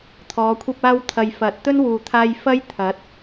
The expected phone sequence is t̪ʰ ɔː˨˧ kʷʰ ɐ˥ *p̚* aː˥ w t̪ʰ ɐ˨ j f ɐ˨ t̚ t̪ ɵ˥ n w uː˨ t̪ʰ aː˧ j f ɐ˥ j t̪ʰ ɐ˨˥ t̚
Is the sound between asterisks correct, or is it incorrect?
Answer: correct